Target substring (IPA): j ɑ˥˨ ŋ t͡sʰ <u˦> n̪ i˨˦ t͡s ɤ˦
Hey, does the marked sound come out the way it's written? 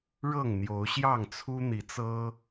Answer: yes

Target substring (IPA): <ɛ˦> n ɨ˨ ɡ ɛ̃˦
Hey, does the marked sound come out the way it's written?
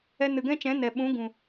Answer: no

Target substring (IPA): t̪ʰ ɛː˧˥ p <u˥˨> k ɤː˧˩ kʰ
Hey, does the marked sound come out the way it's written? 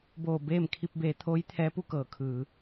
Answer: yes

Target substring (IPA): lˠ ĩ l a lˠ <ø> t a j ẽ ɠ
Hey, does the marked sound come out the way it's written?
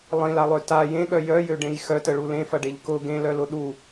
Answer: yes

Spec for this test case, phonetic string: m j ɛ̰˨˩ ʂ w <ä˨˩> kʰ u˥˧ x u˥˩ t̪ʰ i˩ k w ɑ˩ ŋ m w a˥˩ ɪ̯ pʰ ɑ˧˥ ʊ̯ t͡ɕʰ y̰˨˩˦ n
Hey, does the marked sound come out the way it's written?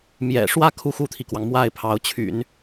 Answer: no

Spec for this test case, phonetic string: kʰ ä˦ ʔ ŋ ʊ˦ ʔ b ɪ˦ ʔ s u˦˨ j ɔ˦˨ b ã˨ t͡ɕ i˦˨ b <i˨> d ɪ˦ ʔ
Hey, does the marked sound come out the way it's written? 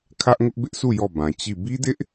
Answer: no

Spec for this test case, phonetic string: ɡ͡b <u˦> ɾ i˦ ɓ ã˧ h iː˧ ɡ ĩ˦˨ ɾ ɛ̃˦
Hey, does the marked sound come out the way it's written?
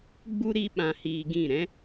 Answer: yes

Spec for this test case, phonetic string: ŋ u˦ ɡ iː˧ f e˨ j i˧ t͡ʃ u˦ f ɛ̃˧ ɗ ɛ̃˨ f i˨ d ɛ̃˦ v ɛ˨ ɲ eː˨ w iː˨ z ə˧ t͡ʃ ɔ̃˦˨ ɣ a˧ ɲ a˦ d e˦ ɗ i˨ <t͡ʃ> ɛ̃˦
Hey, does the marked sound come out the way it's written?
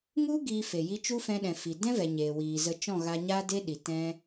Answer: no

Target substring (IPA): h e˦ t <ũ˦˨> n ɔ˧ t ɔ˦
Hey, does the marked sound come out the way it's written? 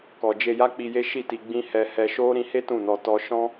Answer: yes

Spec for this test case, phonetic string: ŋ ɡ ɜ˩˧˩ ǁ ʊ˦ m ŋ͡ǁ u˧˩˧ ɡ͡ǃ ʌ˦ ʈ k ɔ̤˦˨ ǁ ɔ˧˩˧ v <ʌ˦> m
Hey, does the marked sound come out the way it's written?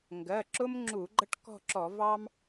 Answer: no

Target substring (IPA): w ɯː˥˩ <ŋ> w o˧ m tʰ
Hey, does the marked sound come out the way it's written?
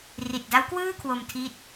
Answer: no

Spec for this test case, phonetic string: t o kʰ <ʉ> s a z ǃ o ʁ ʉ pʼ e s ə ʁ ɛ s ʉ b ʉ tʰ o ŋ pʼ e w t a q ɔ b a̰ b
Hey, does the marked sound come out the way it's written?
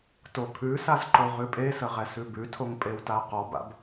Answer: yes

